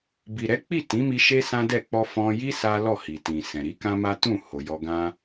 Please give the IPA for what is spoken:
b i˨ ɾ ɛ˨˦ k͡p i˦˨ t ĩ˨˦ m i˧ ʃ e˦ s ã˦ d ɛ˦˨ k͡p ɔ˧ f ɔ̃˧ j i˦ s a˦ l ɔ˦˨ h i˨ t ĩ˨ s ɛ̃˨ ɾ i˨˦ k ã˦ m a˦ t ũ˦˨ h o˨ j ɔ˧ ɡ ã˦

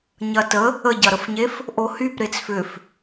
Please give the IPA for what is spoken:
ɲ ɐ t ə | ə ɟ ɐ ɾ ə f ɲ e f | ʔ o h y p ɾ e t͡s f ʏ f

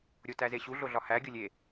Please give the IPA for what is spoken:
ɾʲ o t æ z e ɕ u ɮ o ɮ ɒ h æ ɡʲ o lʲ e

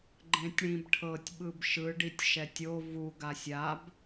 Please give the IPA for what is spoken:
ɡ͡ǃ ẽ tʲ ɽ ĩ b ʈʰ ɤ tʲ ɓ ɯ b ʃ ɯ ɖ i tʲ ʃ ɛ tʲ o v u ɡ a sʲ a b

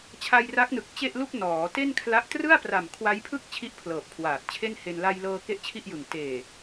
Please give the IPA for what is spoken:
t͡ɕʰ a˧ j r a˦˥ k̚ n ɯ˨˩ k̚ t͡ɕ e˥˩ ʔ l u˥˩ k̚ n ɔː˩˦ t e˥˩ n kʰ l a˦˥ ʔ t r ɯ˥˩ a̯ p r a˨˩ m kʰ w a˦˥ j pʰ ɯ˥˩ k̚ t͡ɕʰ i˥˩ ʔ pʰ l ɤː˨˩ p̚ kʰ w aː˨˩ t̚ t͡ɕʰ e˥˩ n h e˧ n l a˧ j l ɤː˧ k e˥˩ ʔ t͡ɕʰ i˥˩ ʔ j ɯ˨˩ ŋ t eː˨˩

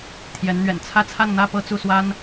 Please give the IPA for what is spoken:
t̪ʰ j ɛ˧˥ n n̪ ɥ ɛ̰˨˩ n t͡sʰ ä˥˧ t͡sʰ a˥˧ n n̪ ä˥˧ p ɤ˥˧ t͡s u˥˩ s w a˥ n

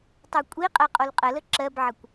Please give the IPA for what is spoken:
tˤ o kʷʼ i qʼ ɜ qʼ o l qʼ ə l ə ǁ ɜ b ʕ ə kʷ

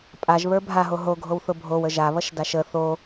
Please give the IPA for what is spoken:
pʼ a ʒ β ə˞ bʱ a ɦ o ɦ o ɡʱ o w θ ʊ bʱ o w ə ʒ a β ʌ ʃ d a ʃ ə θ o

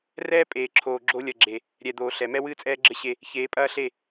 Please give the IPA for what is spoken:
r ɛː˦ pʼ eː˨ ǁʰ oː˨ ɡ͡ǁ o˦ lʲ ɐ˨ ɡ͡ǁ e˨ | ɾʲ ɛ˨ d̪ oː˨ ɬ ɛ˨ m ɛ˦ w ɨː˦ t͡sʼ ɛː˦ ɡ͡ǁ ɘ˦ ɕ e˦ | ç eː˨˦ pʼ ɐː˦ ɬ e˦˨

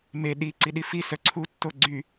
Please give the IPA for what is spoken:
m e ɗ i ǀ i ɗ i f i s œ ǀʰ u tː o ɡ͡ǀ y

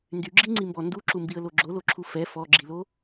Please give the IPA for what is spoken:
n d y ɡ͡ǁ i ŋ͡ǀ i m b ɔ n d u ǁ u m b i ə̯ l o ɡ͡ǁ o l o ǁʰ u f ɛ f ɔ ɡ͡ǁ i l o

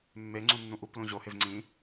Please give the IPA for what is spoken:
mː e ŋ͡ǀ ũ nː ũ ʔ u p l ũ ʑ o h e v ŋ͡ǀ ĩ

